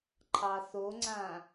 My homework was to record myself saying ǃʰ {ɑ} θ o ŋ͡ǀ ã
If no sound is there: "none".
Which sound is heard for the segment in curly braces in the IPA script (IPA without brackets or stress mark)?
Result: ɑ